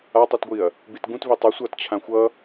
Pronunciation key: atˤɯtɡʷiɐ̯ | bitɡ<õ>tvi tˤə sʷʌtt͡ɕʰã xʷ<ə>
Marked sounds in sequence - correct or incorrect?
incorrect, incorrect

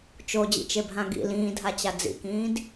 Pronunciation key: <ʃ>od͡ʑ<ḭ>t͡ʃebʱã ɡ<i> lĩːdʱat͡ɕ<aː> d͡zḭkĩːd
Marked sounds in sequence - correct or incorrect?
incorrect, correct, incorrect, incorrect

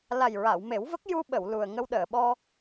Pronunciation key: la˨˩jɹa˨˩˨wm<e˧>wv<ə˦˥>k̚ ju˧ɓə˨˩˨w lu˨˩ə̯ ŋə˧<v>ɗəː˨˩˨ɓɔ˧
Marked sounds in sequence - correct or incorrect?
incorrect, correct, incorrect

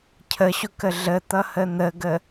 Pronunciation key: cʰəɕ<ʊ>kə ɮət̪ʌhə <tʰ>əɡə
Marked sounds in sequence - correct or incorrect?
correct, incorrect

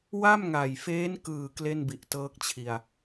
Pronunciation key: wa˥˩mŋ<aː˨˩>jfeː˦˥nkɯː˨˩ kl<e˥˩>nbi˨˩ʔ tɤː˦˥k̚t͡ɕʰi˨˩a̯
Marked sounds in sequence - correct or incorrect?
incorrect, correct

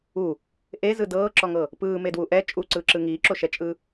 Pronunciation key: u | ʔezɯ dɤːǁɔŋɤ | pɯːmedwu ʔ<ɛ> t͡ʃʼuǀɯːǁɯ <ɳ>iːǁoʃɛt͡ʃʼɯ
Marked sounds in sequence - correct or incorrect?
correct, incorrect

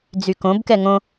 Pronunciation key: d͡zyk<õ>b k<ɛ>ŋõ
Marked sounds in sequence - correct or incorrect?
correct, correct

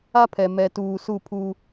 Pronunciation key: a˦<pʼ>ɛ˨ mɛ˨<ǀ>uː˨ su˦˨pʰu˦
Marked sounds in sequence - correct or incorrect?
incorrect, incorrect

